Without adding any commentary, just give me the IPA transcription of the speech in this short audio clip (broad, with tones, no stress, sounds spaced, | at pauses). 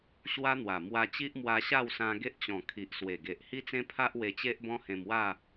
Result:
ɕ w a˦ n̪ w a˨˩ m w a˧ t͡ɕ i˦ ʔ m w a˧ ɕ a˥˧ w s ã˧ ɡ e˦ ʔ t͡ɕ ɔ̃˨˩ kʰ i˨ ʔ s w e˨˩ ɡ e˨ ʔ h i˦ t͡s ẽ˦ pʰ a˦ ʔ w e˧ t͡ɕ e˦ ʔ b ɔ̃˦ h ẽ˧ m w a˥˧